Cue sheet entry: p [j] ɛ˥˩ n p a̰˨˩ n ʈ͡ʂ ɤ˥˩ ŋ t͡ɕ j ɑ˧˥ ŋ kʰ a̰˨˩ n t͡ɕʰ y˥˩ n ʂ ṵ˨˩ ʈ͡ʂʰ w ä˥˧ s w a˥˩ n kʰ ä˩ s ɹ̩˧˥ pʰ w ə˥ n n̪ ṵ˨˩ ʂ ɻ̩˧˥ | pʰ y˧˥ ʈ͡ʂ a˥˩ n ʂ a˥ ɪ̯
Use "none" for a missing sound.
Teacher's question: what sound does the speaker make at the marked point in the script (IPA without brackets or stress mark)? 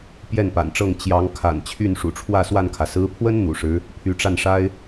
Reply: j